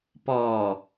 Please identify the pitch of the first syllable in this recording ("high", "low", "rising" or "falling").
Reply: low